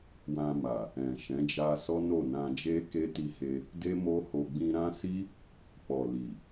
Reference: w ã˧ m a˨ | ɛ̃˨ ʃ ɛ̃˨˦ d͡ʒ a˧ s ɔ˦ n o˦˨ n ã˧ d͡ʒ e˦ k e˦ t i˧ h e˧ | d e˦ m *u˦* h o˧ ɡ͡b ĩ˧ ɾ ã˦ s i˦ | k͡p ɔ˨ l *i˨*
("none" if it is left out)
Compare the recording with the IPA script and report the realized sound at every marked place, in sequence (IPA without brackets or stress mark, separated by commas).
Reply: o˦, i˨